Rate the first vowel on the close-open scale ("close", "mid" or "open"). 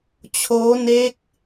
mid